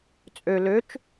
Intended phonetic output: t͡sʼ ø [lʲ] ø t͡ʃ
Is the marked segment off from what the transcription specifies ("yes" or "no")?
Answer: yes